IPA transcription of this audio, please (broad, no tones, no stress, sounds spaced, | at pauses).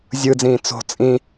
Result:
zʲ ɯ d͡z ĩː t͡s o̤ t͡sʼ ĩ